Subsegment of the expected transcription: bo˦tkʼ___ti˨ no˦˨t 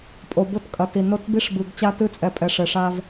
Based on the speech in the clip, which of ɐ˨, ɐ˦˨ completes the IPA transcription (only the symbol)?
ɐ˨